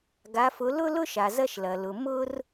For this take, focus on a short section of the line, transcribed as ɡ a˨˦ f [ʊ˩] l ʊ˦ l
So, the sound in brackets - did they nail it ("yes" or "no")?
no